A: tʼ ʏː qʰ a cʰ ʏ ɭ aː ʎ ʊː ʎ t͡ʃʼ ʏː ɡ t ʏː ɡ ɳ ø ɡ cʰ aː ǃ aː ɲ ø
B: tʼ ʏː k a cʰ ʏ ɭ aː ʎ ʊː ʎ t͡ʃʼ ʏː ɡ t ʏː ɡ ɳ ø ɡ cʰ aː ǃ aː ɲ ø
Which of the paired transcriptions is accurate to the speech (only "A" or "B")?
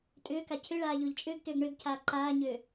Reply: B